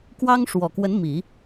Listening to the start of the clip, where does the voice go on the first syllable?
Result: high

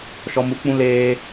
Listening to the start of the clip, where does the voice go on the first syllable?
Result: low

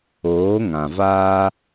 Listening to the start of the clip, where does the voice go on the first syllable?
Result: rising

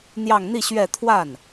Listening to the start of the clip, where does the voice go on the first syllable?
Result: falling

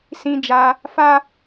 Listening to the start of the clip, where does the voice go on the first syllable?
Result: high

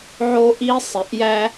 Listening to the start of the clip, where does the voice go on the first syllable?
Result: high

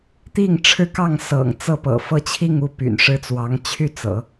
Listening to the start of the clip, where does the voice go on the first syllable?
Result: falling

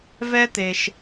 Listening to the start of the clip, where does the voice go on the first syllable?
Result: high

